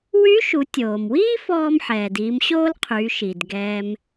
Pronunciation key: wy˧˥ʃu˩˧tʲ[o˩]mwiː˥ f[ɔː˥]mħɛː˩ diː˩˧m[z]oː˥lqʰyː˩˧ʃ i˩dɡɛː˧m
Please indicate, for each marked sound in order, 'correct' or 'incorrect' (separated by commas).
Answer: incorrect, correct, incorrect